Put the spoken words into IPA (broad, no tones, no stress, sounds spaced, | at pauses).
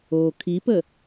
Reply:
o kʰ i p ə